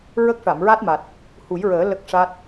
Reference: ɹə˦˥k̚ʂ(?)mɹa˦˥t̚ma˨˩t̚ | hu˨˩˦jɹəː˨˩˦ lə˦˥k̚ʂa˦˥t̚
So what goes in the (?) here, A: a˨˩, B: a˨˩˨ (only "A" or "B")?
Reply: B